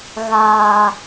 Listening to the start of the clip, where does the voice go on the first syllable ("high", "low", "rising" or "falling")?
low